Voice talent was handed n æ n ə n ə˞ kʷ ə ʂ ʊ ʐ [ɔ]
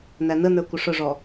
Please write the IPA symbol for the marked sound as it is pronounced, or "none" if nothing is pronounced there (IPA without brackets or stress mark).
ɔ